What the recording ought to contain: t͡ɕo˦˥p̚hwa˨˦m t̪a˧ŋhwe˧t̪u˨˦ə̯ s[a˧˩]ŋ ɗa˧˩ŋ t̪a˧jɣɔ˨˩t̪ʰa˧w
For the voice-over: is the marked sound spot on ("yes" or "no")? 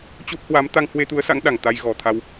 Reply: no